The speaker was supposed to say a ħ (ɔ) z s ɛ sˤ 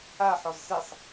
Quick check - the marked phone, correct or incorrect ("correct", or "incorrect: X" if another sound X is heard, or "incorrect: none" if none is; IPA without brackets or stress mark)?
correct